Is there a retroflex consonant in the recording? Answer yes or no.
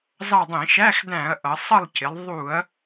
no